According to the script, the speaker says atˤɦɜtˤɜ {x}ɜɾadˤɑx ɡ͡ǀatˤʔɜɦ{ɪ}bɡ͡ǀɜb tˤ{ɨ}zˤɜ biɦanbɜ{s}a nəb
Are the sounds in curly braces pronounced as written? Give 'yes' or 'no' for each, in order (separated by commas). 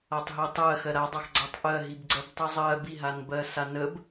yes, no, no, yes